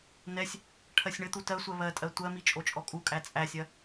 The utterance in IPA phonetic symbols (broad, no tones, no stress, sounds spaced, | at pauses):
n ɛ sʲ | ʈʰ ɜ sʲ ɳ ɘ t̪ u t ɜ sʷ ɜ β ɜ tʼ ɜ tʷ ɜ m i t͡ʃʼ o t͡ʃʼ ɔ kʼ u kʼ æ t͡sʼ æ sʲ ɜ